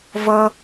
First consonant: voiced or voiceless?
voiced